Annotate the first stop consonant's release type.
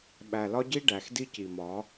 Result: implosive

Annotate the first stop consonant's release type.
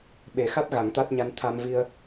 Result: implosive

